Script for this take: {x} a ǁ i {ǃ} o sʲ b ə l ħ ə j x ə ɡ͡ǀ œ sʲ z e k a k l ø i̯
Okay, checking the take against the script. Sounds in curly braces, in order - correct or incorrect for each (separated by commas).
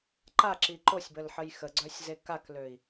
incorrect, correct